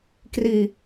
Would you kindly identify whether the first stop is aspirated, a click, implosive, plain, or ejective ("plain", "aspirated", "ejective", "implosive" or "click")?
plain